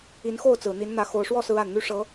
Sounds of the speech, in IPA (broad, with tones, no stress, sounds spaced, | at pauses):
i˨˦ n x o˥˨ ʊ̯ t͡s ɹ̩˨˩ n̪ i˨˦ n n̪ ä˨˦ x o˨˩ ʊ̯ ʂ w ɔ˥˨ s ɹ̩˨˦ a˨˩ n n̪ y˦ ʂ ɤ˨˦